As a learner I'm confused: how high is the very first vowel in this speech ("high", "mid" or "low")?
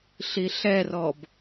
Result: high